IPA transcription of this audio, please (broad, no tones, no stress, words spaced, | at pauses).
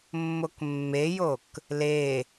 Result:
mːokmːejok | le